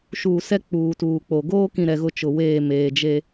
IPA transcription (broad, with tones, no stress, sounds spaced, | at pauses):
ʃ uː˨ s ɛ˦ k͡p uː˨ t uː˨ k͡p o˨ ɡ oː˦ k ĩ˨ ɾ ɛ˨ ɣ ʊ˦ t͡ʃ ʊ˨ w eː˦˨ m eː˨ d͡ʒ e˦